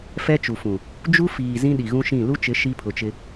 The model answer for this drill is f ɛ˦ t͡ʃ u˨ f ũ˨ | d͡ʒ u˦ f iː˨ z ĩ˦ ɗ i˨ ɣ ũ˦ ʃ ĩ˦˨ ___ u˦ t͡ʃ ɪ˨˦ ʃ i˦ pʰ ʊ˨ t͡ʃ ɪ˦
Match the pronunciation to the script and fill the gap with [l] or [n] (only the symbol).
l